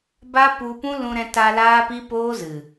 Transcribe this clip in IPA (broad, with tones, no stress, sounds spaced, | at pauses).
b a˦ p u˧ p ũ˦ l ũ˧ ɾ ɛ̃˧ t a˧ l aː˦ p i˦ p oː˦ z ɨ˨